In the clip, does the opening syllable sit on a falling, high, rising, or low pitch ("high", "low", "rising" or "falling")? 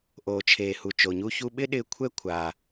low